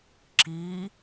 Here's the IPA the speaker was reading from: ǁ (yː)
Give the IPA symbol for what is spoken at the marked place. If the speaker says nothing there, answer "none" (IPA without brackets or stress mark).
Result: iː